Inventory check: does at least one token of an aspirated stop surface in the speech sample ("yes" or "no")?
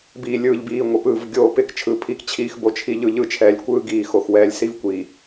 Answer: yes